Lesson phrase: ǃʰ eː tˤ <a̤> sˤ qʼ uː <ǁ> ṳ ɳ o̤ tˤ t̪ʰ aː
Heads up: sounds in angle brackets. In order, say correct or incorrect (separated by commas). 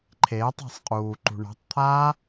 correct, incorrect